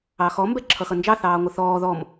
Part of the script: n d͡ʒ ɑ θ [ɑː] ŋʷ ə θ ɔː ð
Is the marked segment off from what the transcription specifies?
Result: no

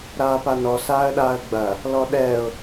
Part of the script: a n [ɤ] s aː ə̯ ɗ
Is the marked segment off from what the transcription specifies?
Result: yes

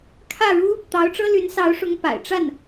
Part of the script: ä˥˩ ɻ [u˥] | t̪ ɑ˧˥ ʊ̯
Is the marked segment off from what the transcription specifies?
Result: no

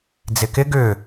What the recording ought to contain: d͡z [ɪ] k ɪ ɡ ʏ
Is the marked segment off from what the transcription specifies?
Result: no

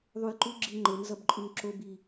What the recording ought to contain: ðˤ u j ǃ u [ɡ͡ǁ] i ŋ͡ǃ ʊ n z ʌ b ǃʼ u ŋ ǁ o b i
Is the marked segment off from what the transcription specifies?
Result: no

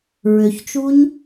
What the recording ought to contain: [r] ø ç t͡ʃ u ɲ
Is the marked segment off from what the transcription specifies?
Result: yes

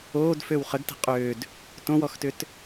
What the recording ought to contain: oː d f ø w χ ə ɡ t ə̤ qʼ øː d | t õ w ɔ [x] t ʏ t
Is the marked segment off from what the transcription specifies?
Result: no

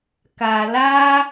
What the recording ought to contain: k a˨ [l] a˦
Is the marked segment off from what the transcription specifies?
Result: no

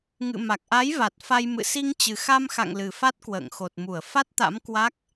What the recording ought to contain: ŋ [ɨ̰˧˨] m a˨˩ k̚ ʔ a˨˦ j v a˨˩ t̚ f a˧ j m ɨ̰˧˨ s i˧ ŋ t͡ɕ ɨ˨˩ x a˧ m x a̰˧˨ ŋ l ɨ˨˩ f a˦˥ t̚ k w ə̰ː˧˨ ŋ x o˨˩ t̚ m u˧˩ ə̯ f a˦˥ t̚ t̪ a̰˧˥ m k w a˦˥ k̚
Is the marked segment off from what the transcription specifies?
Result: no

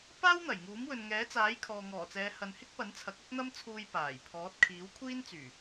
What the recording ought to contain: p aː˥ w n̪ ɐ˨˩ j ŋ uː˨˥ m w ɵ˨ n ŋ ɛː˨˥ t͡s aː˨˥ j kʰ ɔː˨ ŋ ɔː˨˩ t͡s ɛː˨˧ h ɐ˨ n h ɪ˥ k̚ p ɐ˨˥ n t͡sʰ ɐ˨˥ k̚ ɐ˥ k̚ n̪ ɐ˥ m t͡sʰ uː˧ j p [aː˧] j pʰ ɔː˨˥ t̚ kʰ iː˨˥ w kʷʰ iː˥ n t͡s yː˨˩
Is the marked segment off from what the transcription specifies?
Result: yes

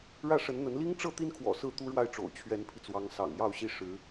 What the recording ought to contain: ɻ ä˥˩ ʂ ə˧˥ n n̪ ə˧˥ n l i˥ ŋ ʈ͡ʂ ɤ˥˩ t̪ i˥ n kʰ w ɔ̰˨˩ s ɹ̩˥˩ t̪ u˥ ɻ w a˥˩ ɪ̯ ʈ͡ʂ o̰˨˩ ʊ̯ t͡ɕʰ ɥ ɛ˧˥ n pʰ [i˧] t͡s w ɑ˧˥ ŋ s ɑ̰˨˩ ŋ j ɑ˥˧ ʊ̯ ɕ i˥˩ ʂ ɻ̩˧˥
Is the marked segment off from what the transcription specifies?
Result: no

